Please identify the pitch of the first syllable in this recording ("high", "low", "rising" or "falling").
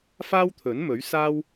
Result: high